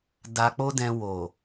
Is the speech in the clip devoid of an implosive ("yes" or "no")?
yes